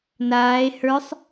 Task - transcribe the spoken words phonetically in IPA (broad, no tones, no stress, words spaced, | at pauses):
naːe̯ hə˞sˤ